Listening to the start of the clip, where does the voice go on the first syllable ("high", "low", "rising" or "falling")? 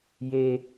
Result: high